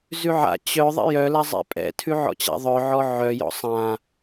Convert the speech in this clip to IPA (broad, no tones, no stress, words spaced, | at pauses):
zʉʕa̰ t͡ɕœ ðˤɛ̰jœ lazˤɛ̰pʼɛ̰ tʰʉʕɔ̰t͡ɕa̰ðˤœ ʕɔʕœjɔ̰ sˤã